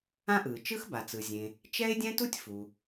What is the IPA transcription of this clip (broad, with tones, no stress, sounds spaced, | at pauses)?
ã˥ ʔ ɯː˩ t͡ʃ ɯ˥ x b a˩ t͡s ɯ˩ zʲ ẽ˩ | t͡ʃ ɛ˥ ɪ̯ dʲ ɛ̃˥ t u˥ tʲ f u˩